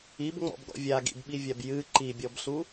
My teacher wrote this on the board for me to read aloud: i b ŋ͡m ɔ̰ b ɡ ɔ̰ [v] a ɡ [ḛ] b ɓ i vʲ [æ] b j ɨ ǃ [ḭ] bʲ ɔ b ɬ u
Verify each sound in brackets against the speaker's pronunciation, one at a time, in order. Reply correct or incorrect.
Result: incorrect: vʲ, incorrect: ḭ, incorrect: a, incorrect: i

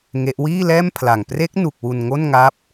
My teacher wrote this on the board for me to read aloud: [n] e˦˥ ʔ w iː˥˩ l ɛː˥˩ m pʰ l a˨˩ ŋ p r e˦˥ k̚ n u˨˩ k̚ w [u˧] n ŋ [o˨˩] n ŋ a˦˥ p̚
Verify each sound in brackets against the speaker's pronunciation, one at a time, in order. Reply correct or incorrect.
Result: incorrect: ŋ, correct, incorrect: o˥˩

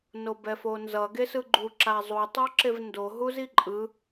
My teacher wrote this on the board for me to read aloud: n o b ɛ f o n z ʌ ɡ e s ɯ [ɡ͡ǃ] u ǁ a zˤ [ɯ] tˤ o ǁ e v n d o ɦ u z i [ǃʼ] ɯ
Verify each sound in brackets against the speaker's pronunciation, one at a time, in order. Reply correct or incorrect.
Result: correct, incorrect: u, correct

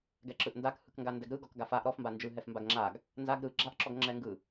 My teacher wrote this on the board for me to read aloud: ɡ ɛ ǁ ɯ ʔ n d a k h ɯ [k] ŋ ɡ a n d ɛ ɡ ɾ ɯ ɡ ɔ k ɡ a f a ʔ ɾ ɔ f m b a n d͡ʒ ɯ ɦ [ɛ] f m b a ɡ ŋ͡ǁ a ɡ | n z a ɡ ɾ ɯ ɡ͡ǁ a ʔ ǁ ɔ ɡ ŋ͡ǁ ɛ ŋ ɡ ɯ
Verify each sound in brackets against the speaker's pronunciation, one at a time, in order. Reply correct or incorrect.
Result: correct, correct

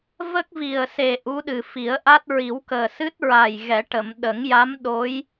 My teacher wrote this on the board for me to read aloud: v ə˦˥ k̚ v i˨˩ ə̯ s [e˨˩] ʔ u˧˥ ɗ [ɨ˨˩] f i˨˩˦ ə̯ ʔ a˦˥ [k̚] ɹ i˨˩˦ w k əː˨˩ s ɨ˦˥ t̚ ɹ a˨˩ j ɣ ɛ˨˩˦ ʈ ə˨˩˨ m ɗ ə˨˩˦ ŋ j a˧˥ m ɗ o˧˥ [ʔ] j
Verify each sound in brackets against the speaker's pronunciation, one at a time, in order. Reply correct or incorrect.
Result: correct, correct, incorrect: t̚, incorrect: none

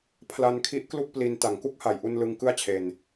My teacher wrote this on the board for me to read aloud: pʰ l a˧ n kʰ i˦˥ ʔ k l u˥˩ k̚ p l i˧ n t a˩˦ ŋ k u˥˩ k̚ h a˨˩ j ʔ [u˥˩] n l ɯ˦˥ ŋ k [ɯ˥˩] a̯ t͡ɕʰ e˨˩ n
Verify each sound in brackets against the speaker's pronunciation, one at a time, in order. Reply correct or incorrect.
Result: incorrect: u˧, correct

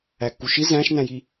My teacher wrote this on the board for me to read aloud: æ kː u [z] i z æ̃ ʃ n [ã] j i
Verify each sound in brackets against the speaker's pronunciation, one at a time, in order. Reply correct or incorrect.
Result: incorrect: ʃ, incorrect: æ̃

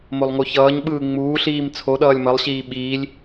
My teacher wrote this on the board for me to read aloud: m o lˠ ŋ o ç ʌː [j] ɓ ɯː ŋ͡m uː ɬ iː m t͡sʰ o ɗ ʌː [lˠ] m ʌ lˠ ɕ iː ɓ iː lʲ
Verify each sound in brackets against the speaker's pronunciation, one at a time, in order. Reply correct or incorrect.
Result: incorrect: ɲ, incorrect: lʲ

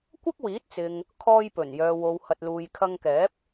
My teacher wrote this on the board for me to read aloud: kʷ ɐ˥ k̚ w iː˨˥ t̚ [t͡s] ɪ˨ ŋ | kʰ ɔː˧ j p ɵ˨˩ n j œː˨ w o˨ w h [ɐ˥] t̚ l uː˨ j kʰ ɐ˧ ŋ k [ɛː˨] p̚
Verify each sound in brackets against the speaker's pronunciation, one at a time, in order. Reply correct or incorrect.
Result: correct, incorrect: ɐ˨, incorrect: ɛː˨˥

